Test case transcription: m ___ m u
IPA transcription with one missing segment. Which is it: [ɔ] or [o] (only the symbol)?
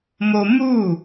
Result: o